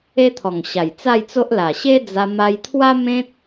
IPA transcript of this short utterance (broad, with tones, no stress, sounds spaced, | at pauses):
e˦ t̪ʰ ɔ˨˩ ŋ ɕ a˨˩ j t͡s a˥˧ j t͡s o˦ ʔ l a˨˩ ɕ e˦ d͡z a˧ m a˧ j t̪ʰ w a˦ m ẽ˦ t̚